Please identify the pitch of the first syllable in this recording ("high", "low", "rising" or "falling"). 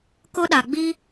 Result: high